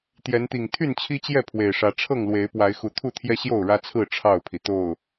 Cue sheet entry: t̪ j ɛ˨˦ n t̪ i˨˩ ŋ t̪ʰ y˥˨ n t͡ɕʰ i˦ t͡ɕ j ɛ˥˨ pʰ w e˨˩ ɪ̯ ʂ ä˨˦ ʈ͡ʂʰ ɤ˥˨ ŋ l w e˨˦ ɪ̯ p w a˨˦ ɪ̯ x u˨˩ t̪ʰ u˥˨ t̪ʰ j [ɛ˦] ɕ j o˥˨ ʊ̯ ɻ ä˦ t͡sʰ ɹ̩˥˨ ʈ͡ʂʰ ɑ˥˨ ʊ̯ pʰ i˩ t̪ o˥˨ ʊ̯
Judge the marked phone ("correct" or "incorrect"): correct